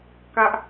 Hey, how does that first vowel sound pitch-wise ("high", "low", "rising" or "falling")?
high